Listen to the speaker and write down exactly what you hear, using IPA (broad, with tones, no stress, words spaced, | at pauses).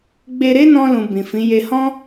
ɡ͡be˧ɾe˦nɔ̃˧ lũ˨ bĩ˨fĩ˨˦je˧ hɔ̃˦